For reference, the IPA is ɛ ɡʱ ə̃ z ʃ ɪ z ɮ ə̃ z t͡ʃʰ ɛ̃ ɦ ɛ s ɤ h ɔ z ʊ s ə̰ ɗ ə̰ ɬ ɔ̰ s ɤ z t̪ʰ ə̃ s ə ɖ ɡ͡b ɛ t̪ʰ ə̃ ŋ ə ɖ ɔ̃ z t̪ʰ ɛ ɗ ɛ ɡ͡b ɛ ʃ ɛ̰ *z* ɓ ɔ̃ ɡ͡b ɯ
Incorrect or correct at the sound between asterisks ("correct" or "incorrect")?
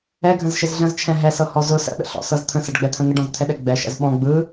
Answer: correct